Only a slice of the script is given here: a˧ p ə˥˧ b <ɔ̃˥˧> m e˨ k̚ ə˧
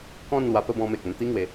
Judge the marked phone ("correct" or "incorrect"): incorrect